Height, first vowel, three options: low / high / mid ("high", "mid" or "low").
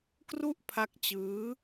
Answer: high